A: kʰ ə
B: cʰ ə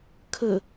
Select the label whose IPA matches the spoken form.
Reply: A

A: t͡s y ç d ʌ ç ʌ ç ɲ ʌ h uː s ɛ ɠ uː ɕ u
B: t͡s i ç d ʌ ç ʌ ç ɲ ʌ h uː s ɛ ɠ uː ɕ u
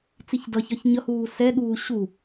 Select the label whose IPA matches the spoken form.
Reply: B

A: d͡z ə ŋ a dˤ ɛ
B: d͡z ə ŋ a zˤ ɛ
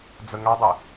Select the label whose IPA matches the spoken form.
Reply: A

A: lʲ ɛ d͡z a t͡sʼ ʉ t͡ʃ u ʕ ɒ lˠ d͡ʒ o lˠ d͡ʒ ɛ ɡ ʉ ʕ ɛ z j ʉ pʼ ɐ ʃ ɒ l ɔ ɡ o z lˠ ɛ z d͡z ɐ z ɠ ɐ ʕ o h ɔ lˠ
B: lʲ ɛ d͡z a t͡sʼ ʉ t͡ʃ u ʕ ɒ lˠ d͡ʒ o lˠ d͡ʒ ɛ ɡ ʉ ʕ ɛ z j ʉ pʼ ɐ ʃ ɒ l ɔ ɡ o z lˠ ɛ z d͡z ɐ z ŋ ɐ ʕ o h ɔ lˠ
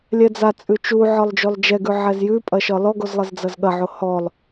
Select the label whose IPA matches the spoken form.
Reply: A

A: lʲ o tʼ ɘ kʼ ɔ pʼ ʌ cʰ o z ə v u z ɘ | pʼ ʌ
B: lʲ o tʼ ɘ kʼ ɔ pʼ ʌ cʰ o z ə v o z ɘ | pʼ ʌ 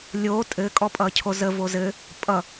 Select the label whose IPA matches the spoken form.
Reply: B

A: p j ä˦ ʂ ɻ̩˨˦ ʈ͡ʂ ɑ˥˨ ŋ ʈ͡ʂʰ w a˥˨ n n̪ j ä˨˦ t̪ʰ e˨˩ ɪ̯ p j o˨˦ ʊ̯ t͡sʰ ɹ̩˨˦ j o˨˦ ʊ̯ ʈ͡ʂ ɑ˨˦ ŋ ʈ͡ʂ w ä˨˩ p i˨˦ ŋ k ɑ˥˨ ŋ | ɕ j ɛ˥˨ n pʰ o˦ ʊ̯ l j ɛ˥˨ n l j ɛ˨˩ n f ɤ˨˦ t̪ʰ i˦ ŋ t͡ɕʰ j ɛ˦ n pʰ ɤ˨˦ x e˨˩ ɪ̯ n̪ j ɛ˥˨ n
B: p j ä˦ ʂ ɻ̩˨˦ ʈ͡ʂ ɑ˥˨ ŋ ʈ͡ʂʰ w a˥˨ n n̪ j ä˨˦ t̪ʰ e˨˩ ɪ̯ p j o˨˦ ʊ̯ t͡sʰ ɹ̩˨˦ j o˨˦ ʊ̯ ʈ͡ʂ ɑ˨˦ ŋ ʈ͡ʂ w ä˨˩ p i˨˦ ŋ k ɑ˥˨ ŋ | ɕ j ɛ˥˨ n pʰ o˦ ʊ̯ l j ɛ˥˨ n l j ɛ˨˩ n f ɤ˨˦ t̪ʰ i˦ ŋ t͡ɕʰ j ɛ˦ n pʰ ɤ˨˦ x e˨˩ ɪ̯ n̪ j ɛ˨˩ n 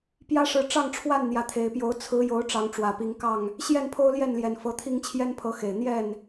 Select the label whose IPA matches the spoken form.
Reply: A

